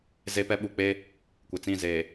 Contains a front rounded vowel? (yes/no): no